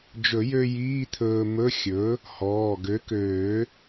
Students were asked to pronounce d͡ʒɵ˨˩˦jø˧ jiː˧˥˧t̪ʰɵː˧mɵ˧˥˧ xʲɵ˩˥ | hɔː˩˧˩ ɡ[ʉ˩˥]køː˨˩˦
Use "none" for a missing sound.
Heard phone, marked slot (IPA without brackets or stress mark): ø˩˥